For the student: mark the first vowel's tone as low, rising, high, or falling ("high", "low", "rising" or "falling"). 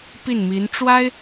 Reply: falling